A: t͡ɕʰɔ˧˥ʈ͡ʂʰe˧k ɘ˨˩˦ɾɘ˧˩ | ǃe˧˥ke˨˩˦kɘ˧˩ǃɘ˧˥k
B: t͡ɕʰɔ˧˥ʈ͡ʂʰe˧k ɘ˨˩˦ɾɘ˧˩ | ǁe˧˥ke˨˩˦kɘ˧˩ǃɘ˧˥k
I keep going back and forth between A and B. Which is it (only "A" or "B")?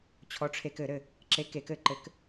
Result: B